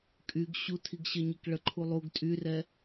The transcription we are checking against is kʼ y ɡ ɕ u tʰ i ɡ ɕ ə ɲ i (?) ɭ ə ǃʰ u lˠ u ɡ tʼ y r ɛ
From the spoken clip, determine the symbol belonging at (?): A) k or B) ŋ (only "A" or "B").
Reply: A